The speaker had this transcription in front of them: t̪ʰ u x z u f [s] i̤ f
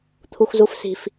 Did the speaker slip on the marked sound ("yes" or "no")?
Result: no